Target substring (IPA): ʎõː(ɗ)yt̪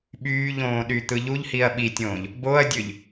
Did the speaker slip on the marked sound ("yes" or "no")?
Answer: no